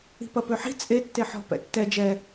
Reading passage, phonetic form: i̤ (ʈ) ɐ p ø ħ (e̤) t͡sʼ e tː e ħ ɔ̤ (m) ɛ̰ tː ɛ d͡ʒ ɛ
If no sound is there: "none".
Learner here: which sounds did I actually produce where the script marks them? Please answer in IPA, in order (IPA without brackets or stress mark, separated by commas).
p, i̤, p